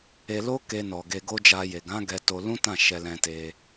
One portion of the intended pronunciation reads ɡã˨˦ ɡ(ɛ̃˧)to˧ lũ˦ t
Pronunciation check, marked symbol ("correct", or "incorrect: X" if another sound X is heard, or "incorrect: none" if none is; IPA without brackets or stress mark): incorrect: ɛ˧